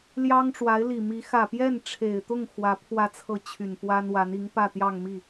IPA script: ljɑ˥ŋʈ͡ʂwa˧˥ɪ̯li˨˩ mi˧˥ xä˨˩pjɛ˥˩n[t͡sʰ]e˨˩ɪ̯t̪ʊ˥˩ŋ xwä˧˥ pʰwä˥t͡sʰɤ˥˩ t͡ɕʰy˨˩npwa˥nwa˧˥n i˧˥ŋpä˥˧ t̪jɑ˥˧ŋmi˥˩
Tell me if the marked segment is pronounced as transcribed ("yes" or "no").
no